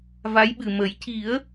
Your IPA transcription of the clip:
v a˧˥ j ɓ ɨ˨˩ m ə˨˩˦ j c i˨˩˦ ə̯

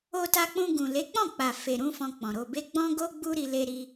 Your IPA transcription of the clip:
o˧ t a˧ k͡p ũ˧ ɡ ũ˨ l e˨˦ k͡p ɔ̃˦˨ k͡p a˨ f e˨ ɾ ũ˧ f ɔ̃˧ k͡p ɔ̃˨ ɾ o˨ b e˧ ɡ͡b ɔ̃˦ ɡ o˦ ɡ͡b u˦ ɾ i˧ l e˧ ɾ i˧

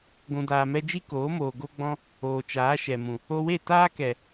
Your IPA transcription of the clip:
ɡʷ ũ˨ d aː˨ m ɛ˧ d͡ʒ i˦ k oː˨˦ m oː˨ ɡ o˧ ɡ͡b ɔ̃˧ | oː˨ t͡ʃ aː˨˦ ʃ ɛ˨ m ũ˨ | o˧ w e˦˨ t aː˦ k ɛ˨

